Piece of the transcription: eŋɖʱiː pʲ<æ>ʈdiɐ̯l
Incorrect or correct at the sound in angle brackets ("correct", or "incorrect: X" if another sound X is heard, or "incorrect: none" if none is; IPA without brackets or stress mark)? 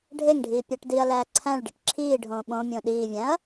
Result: correct